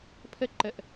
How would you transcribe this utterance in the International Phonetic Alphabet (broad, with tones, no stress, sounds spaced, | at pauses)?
pʰ ə˦ ǃ ə˧ ʔ